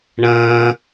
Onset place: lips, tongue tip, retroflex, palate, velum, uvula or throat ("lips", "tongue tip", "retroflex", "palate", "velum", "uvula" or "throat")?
retroflex